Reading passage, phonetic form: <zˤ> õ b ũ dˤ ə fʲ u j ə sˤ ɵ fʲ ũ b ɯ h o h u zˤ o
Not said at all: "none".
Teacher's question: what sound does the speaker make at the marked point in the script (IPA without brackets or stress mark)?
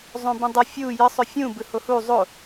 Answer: zˤ